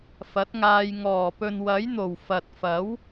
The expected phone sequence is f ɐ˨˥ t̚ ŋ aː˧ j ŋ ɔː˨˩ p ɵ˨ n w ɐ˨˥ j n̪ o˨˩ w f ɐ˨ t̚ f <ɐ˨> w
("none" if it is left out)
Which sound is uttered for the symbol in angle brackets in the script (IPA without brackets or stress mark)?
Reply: ɐ˨˥